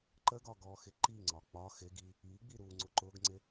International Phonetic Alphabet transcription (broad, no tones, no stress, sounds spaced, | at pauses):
ǃ ə ɡ ɒ ɡ ɔ x ɪ ǃ i ŋ͡ǀ ɒ k͡p ɒ x ɪ ɡ i | i ɡ͡b i ɾ u ŋ͡ǀ ʊ ǃ ʊ ɡ ŋ͡ǀ ɪ